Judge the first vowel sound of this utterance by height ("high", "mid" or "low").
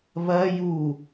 low